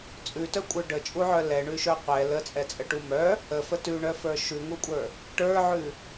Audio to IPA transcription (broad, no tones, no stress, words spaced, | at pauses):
t͡sʼʉtœkʷʼə˞ ɖət͡ʃʼuʕœ lɛɳʉʃœ qʷɛ lət͡sʼɛt͡sʼəʈu mœ | əfə tʉɳœfə˞ ʃʉŋukʷʼə˞ | ʈə˞ʕʉ